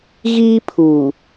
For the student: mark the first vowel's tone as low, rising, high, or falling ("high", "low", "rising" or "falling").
high